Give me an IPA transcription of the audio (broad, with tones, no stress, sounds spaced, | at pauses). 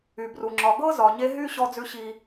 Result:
y˨ b r u˨ ŋ͡ǁ ɒ˨ ɡ ɤ˦ z ɒ˨ ɲ e˦ ɦ y˦ ɕ ɔ˦ d͡z ʉ˦ ɕ i˦